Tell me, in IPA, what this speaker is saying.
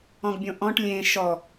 ɔ̃ ɡ bʲ õ ʔ ɔ̃ ʈ lʲ ẽ ʃ ɔ

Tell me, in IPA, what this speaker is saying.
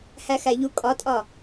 h æ x æ ʎ u kʼ ɒ tʼ ɒ

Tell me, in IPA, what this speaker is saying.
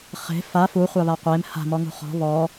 χ e̤ f a f u χʷ a β a qʷ e m h a̤ m ɔ ŋ ṳ χ ɔ̤ β ɔ

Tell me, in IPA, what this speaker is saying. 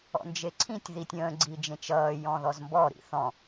ɔ̰ n d͡ʒ e ǀʰ ĩ tʲ ð i tʲ ə̃ː ɡ͡ǀ i d͡ʒ ẽ t͡ʃ ʌː j ɔ̃ ð ɔ z m b ɔ ɾ ḭ θ ɔ̃

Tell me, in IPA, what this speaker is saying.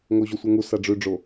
ŋ o ʑ o sʷ œ ŋ u s a ɖ͡ʐ ʉ ɖ͡ʐ o

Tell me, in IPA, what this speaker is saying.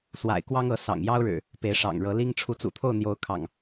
s w a̰˨˩ ɪ̯ k w ɑ˦ ŋ ɤ˨˦ s ɑ̰˨˩ ŋ j ɑ˦ ʊ̯ ɻ ɻ̩˨˩ | p e˨˦ ɪ̯ ʂ ɑ̰˨˩ ŋ ɻ ɤ˨˦ l i˦ ŋ ʈ͡ʂʰ u˨˦ t͡s ṵ˨˩ t̪ʰ o˥˨ ʊ̯ n̪ j o˨˦ ʊ̯ kʰ ɑ̰˨˩ ŋ

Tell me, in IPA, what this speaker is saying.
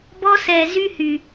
b ɔ˦ s ɛ˧ z y˦ h y˧

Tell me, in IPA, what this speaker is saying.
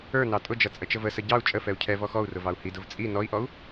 ə˞ n ɑ tʼ ʊ d͡ʒ ʌ t͡sʼ ə t͡ʃ ə v ə s ə ɟ ɑ u̯ t͡ʃʼ ə f ɛ u̯ cʰ ɛ v ɔ x ɔ u̯ r ʊ v ɑ u̯ h i d ʊ v t͡sʼ i n ɔ i̯ ʔ ɔ u̯

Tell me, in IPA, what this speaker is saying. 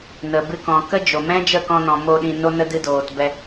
n ə˨ b ɨ˧ k ɔ̃˨ k ə˦ d͡ʒ o˨ m ɛ̃˦ d͡ʒ ə˦˨ k ɔ̃˧ n ɔ̃˨ m o˧ ɗ ĩ˧ n o˦ n ə˦ d ɨ˧ d oː˨ t b ɛ˧

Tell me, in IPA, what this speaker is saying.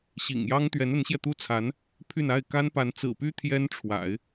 ɕ ḭ˨˩ ŋ j ɑ˥ ŋ t̪ ɥ ɛ˧˥ n ə˧˥ n ɕ j ɛ˧ t̪ u˥ t͡sʰ a˧˥ n | pʰ y˥˧ n a˥˩ ɪ̯ k a˥ n p a˧˥ n t͡s ɹ̩˨˩ p y˥ t̪ʰ j ɛ˥ n ʈ͡ʂʰ w a̰˨˩˦ ɪ̯

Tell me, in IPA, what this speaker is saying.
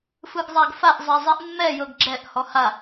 f ɯ ɡ zˤ a ɡ f a ʔ zˤ ɛ zˤ i ʔ mː ɛ j ɤ ɡ ɡ͡ǁ ɛ ʔ h ɔ h a

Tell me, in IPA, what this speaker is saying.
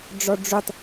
ɖ͡ʐ ɔ ɖ͡ʐ u tˤ

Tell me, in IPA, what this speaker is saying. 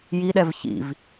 j i ɗ ɛ v ç ḭ v

